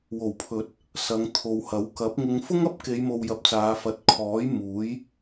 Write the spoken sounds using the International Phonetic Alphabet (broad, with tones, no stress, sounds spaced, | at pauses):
w o˨˩ w pʰ ɵ˨˥ t̚ | s ɐ˨˧ ŋ t̪ʰ o˨ w h ɐ˨˥ w k ɐ˨˥ p̚ ŋ ɪ˧ ŋ f ʊ˥ ŋ ɐ˥ p̚ k e˨˧ j m o˨ w j ɐ˧ p̚ t͡s aː˨˧ f ɐ˨ t̚ kʰ ɔː˨˥ j m uː˨˥ j